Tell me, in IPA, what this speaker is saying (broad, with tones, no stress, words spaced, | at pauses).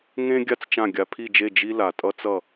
ŋẽ˥ ɡʲa˥t͡st͡ʃã˥˩ɡʲa˧ pʰi˥˩d͡ʒe˥˩ d͡ʒi˥ la˩tʼʌ˥t͡sʌ˥˩